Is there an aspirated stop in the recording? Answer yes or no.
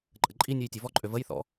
no